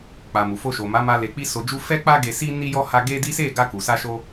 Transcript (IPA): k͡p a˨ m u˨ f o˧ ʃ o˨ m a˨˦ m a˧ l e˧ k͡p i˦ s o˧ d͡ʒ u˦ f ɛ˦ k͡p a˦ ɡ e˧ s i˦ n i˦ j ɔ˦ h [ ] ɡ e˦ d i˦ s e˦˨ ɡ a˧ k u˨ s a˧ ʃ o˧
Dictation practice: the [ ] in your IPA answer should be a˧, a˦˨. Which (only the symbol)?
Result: a˧